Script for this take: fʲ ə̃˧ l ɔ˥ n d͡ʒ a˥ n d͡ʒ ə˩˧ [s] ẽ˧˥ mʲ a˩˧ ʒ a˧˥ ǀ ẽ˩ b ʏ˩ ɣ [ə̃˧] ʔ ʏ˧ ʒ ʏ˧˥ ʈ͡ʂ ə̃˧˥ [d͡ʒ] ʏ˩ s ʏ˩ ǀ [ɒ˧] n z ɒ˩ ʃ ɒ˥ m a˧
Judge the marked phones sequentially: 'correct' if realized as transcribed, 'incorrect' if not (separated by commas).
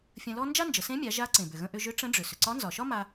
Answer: correct, correct, incorrect, incorrect